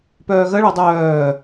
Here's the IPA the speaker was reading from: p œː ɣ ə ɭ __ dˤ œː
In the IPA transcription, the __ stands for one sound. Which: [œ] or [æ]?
œ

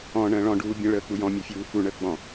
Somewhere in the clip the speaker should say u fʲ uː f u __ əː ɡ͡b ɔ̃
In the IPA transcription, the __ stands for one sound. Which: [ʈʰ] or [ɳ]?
ɳ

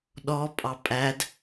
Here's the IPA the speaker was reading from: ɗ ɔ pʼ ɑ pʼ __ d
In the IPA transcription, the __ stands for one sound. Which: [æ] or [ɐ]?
æ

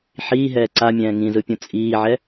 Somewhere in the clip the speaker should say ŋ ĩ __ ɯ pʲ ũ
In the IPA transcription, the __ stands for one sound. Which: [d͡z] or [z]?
z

